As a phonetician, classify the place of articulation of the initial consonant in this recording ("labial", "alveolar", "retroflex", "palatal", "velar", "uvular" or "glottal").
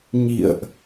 palatal